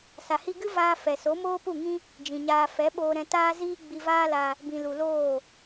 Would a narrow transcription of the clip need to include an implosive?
yes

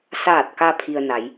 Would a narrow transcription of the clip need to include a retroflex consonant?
no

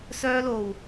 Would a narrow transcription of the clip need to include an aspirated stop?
no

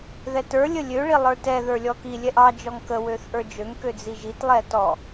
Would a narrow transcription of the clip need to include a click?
no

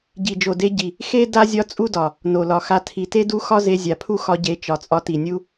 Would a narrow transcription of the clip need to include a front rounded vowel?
no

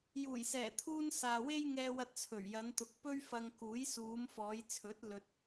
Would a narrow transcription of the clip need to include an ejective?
no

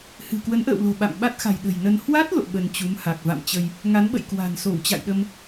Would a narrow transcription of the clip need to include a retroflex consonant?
no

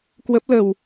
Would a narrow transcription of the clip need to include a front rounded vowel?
no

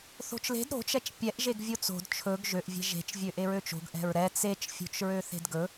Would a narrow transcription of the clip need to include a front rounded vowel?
yes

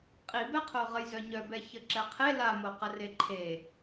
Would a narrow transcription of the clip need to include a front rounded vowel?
yes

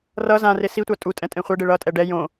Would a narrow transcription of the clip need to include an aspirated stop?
no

